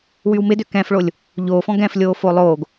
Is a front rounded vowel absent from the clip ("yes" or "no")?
no